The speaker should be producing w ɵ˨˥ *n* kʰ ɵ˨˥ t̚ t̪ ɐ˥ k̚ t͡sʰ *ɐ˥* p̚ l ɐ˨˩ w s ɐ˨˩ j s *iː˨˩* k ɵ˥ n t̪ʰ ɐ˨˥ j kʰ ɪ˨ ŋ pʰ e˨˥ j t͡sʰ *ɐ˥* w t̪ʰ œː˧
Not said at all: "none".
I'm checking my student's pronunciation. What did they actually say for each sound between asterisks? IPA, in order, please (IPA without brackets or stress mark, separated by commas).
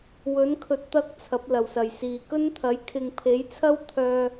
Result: n, ɐ˨˥, iː˨˩, ɐ˥